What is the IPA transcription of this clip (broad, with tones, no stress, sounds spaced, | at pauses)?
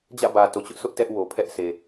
d͡ʑ ä̰˦˨ b ä˨ t o˨ t͡ɕ ʊ˦ ʔ sʰ ʊ˦ ʔ t ɛ˦ ʔ w o˨ pʰ ɛ˦ ʔ sʰ e˨